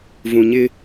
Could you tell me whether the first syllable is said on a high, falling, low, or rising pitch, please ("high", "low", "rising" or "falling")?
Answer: low